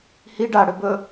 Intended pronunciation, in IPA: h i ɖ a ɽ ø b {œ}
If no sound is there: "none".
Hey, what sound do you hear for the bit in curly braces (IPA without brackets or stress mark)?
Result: ɵ